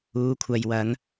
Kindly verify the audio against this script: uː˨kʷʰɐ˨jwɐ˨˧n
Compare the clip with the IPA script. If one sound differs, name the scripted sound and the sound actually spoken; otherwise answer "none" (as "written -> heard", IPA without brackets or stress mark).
none